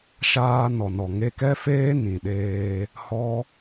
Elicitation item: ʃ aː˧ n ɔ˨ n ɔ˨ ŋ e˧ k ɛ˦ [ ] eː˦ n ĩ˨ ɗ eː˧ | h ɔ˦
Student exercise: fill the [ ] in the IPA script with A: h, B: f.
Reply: B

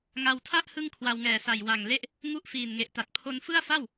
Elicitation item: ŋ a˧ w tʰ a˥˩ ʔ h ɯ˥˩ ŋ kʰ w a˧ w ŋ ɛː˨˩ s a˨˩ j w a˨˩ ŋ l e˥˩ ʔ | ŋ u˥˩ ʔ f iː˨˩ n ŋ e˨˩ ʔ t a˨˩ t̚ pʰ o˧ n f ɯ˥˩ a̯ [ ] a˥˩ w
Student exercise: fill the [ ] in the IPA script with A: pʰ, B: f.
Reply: B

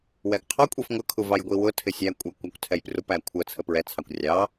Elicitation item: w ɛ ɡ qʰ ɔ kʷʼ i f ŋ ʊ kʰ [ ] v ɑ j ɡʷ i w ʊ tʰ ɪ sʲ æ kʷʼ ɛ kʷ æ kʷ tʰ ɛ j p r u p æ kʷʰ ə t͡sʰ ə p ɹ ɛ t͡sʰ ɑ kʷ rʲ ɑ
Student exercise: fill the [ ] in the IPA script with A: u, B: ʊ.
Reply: A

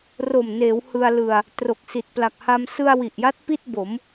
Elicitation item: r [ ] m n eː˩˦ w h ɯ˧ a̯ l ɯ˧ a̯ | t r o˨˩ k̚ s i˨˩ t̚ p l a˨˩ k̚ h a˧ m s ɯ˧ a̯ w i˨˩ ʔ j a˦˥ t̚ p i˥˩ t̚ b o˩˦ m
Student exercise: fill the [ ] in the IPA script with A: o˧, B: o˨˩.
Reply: B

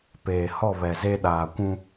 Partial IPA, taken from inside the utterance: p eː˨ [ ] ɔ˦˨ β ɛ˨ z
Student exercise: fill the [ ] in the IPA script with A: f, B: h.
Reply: B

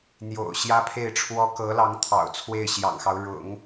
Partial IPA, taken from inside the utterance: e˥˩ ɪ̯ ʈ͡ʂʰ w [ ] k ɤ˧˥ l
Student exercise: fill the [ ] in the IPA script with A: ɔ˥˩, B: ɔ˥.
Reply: B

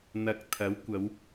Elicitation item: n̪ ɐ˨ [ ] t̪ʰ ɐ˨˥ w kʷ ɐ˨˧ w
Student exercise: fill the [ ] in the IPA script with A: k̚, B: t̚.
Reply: A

